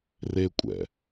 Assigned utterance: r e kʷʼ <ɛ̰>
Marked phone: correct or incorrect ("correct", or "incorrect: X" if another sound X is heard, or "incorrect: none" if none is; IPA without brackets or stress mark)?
correct